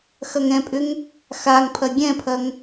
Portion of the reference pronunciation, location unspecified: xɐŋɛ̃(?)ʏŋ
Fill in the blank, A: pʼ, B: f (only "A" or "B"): A